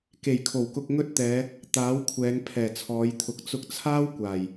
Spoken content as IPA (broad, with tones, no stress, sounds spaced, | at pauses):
k e˨˩ j kʰ o˨˩ w k ʊ˧ k̚ ŋ ɵ˥ t̚ t̪ ɛː˨˧ | t̪ aː˨˥ w kʷʰ ɛː˨˧ ŋ pʰ ɛː˨˩ t͡sʰ ɔː˨˧ j t̪ʰ ʊ˨˥ k̚ t͡s ʊ˧ k̚ t͡sʰ aː˥ w kʷ aː˨˩ j